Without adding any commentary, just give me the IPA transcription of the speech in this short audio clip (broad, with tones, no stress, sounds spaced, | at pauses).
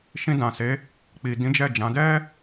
ʃ ĩ˧ d ã˨ s e˨˦ | k͡p i˨ d ĩ˨˦ d͡ʒ ɛ˦˨ d͡ʒ ã˨˦ d ɛ˦